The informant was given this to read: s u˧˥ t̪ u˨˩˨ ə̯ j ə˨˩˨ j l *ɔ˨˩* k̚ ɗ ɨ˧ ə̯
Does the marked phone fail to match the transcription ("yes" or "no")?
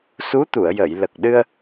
yes